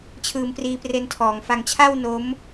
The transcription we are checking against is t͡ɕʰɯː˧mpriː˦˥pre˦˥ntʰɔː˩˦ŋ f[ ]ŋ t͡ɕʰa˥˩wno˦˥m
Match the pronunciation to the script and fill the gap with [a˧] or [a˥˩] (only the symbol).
a˧